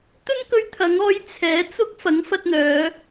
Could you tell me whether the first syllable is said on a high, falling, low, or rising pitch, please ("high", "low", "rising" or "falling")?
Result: high